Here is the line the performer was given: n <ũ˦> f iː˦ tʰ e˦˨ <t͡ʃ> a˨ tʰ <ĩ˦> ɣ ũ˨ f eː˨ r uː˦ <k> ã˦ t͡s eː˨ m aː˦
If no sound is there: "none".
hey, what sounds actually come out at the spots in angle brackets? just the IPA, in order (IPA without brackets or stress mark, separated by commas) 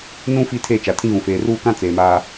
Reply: ũ˦, t͡ʃ, ĩ˦, k